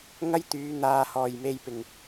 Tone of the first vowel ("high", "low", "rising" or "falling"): high